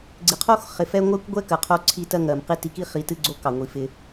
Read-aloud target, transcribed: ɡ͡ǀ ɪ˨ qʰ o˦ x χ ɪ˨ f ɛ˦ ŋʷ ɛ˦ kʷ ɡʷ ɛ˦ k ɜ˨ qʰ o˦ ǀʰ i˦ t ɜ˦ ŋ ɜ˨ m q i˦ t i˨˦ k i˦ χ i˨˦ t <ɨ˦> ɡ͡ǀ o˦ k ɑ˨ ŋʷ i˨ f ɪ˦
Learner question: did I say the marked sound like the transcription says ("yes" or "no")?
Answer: yes